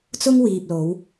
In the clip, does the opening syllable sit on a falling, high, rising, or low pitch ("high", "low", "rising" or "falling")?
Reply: high